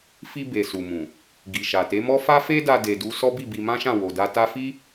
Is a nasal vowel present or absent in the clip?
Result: present